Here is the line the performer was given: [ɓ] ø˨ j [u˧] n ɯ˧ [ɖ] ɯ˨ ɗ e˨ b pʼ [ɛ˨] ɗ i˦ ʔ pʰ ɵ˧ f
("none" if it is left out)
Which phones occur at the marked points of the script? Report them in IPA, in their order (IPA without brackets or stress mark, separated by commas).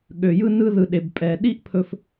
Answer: ɠ, ɯ˧, ð, ɛ˨